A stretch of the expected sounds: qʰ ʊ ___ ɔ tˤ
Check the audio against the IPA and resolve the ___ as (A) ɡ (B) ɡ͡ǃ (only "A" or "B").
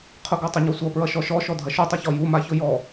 A